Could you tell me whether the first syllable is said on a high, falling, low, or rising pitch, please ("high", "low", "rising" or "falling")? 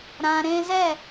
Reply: high